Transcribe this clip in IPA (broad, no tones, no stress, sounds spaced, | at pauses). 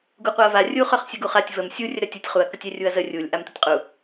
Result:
ɡ u qʷ a ɐ̯ v a rʲ u χ œ χ sʲ ə ɡ u χ a tʲ v ə m sʲ u rʲ ə ɾ œ tʲ u tʲ χ u ɐ̯ k ə tʲ œ rʲ u ɐ̯ z ə rʲ u lʲ ʔ a m t u tʲ qʼ u